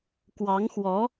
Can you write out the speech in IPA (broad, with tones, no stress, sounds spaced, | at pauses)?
k w ɑ˧˥ ŋ x w ɔ˧˥